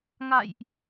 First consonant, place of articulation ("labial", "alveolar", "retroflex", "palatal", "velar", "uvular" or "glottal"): velar